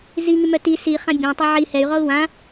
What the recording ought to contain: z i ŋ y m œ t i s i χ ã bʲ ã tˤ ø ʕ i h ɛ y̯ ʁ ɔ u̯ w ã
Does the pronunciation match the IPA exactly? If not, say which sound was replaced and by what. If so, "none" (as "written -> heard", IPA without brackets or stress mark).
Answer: none